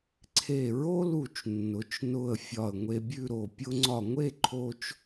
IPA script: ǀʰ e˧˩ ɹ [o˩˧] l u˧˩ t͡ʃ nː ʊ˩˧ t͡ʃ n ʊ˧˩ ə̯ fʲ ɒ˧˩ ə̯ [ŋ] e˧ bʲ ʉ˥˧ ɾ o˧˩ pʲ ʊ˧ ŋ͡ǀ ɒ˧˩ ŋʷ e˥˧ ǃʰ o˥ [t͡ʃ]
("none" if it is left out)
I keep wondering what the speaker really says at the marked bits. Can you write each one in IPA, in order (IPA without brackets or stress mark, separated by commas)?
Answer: o˥, ŋʷ, t͡ʃ